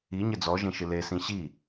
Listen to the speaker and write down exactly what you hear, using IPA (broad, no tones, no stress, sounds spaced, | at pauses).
i ɲ ɘ d͡z ɔ ʒ ẽ ʃ ɨ l e s ĩ ɕ i